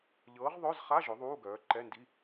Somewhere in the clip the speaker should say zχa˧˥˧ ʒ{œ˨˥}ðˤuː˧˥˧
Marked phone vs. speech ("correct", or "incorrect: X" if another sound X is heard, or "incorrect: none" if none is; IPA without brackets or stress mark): correct